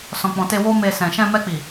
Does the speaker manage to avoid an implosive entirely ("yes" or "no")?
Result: yes